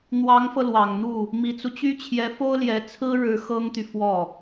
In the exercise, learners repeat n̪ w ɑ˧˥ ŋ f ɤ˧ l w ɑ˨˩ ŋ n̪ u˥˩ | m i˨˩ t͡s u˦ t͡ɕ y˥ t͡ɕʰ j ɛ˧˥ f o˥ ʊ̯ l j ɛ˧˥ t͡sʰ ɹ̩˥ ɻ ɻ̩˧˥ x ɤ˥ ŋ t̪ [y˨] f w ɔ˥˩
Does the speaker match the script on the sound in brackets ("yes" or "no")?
yes